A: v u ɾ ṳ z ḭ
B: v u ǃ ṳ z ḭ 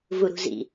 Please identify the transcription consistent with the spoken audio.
A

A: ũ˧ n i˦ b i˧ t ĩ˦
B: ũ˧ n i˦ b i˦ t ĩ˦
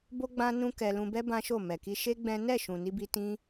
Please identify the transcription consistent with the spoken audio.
B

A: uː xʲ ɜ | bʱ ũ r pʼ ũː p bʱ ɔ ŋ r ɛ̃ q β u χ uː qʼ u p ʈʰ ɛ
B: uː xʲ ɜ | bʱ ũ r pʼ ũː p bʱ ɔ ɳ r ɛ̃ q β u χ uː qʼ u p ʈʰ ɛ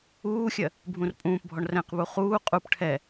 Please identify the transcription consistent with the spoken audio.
B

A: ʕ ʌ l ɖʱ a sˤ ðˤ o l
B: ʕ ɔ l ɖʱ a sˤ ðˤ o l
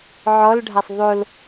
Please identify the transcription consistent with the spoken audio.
B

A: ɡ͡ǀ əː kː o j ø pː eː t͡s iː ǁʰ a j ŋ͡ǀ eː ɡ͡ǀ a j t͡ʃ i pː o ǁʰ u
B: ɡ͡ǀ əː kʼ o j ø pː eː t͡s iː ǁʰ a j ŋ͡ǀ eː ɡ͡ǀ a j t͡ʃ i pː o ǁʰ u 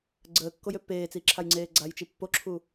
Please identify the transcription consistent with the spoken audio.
A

